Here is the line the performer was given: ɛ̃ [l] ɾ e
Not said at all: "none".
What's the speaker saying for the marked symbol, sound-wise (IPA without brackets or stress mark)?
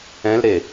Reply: l